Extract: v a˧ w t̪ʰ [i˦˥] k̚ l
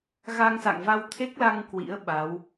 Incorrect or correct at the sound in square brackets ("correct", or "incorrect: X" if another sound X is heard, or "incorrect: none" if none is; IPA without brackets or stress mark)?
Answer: incorrect: e˦˥